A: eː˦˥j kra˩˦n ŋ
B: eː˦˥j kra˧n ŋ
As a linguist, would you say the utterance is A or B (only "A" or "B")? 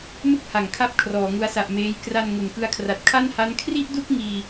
B